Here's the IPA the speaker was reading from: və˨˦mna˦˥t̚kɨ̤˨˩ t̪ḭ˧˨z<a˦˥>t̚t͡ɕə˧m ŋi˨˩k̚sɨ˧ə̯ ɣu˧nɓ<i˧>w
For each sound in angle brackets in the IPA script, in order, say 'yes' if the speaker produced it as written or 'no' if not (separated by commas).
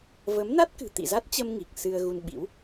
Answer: yes, no